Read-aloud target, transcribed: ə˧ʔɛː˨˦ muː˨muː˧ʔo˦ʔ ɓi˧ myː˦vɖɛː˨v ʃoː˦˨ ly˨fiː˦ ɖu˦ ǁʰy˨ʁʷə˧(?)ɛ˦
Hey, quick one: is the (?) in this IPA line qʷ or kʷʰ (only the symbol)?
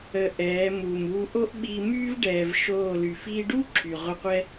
qʷ